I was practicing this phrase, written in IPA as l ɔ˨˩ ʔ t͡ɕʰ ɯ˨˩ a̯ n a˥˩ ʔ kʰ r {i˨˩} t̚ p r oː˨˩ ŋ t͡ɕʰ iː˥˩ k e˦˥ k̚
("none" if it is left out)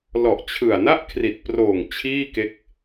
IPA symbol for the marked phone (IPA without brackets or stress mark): i˨˩